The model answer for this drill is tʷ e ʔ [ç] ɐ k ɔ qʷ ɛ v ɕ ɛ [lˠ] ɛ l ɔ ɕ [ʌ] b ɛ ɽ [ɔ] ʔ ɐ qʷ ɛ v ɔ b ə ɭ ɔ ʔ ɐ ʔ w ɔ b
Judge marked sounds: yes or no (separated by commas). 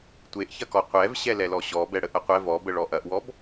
yes, no, no, no